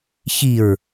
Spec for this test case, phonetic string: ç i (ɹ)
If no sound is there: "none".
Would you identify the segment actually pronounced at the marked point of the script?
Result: ɹ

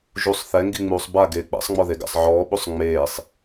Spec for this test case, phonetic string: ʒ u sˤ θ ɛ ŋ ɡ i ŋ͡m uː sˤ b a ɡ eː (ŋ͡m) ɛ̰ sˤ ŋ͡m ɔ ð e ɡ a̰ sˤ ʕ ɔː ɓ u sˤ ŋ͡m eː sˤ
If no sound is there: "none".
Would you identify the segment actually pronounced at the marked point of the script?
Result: k͡p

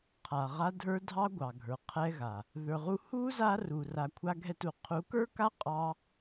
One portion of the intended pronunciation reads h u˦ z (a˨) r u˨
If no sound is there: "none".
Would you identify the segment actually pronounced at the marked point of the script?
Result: a˦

